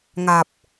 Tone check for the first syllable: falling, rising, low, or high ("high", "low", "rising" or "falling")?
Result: low